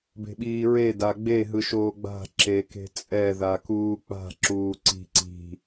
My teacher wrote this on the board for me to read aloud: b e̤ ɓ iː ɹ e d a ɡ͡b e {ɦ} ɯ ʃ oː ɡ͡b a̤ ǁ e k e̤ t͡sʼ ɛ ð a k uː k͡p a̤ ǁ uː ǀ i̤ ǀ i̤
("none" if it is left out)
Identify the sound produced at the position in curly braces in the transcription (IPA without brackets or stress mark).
ɦ